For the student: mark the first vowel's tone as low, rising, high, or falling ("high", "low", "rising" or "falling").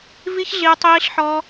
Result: high